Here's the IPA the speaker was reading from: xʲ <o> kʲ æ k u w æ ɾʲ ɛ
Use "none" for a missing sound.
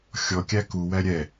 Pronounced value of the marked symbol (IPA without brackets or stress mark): ɔ